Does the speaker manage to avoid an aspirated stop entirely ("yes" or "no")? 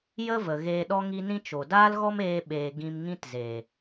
yes